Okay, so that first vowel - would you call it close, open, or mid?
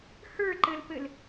mid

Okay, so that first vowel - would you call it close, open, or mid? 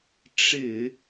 close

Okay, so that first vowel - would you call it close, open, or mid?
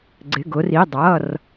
close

